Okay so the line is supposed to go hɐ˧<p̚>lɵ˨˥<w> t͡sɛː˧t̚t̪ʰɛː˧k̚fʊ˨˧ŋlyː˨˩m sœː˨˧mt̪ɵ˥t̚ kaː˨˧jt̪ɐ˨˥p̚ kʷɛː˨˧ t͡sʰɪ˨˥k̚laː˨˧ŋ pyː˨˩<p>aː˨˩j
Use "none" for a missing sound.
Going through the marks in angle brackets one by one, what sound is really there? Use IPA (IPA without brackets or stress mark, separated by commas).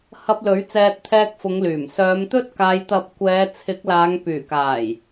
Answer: p̚, ɥ, k